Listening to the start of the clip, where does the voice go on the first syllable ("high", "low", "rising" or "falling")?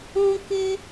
high